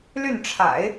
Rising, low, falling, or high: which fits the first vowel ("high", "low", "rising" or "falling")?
falling